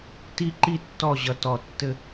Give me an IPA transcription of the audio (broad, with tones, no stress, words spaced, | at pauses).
ti˦ǃi˦tːɔ˦˨ʑʌ˨ tɔ˨ tːɘ˦